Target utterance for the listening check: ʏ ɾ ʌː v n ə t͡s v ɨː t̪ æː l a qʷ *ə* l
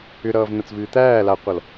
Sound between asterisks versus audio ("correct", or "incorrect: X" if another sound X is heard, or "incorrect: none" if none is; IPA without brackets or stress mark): incorrect: ʌ